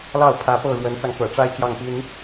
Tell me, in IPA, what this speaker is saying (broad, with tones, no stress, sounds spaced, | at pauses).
l ɑ˥˩ ʊ̯ pʰ ä˧˥ p ɤ˥˩ ɻ w ə˧˥ n t͡s ɑ˧ ŋ k ɤ̰˨˩ ʈ͡ʂ a˥˧ ɪ̯ t͡ɕ j ɑ˥˩ ŋ p i˥ n